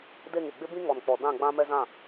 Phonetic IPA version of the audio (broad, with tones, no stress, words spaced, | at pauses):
de˦˨ŋɪ˨ ɡ͡bɪ˦bĩ˦ ŋɔ˨nk͡pɔ˨dã˦˨ɡ͡bã˦ mɛ˦zã˦˨